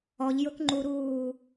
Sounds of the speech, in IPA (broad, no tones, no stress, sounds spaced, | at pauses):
ɔ ʎ j ʊ k ŋ͡ǃ u ɾ uː